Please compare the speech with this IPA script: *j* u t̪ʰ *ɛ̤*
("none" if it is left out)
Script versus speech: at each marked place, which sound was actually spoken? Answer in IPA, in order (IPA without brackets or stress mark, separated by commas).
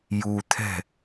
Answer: j, ɛ̤